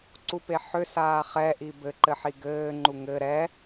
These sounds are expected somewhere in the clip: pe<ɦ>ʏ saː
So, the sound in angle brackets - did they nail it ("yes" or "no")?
no